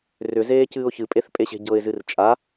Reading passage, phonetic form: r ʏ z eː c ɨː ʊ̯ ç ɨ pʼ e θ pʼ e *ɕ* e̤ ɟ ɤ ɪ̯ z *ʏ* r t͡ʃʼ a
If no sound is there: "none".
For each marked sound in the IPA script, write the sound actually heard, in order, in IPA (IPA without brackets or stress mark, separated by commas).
ɕ, ɨ